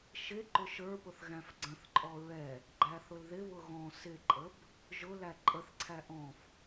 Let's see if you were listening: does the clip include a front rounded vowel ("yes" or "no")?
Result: no